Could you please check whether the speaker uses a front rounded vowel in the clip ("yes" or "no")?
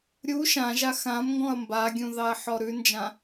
no